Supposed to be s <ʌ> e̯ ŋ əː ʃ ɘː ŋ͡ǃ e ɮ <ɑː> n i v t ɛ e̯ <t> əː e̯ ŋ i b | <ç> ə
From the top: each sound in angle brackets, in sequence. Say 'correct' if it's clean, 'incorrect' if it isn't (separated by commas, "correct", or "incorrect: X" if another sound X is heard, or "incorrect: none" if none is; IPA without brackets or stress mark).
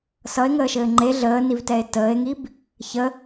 correct, incorrect: əː, correct, correct